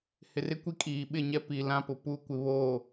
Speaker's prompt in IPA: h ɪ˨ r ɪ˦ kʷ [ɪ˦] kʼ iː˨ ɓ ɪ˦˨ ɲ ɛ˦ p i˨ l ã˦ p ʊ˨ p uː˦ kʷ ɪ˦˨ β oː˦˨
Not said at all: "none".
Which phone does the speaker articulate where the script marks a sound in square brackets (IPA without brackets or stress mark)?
i˦